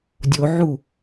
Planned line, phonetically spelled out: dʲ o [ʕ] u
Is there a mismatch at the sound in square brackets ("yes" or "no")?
no